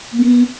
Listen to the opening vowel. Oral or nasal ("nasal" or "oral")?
nasal